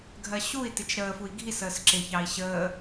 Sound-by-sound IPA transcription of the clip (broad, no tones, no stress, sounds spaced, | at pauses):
ɡʱ ɜ ɕ u i̯ t ɪ t͡ʃ ɾ əː f u i̯ ɡʱ i s əː s ǁ ɪ ç ɑ i̯ ɕ əː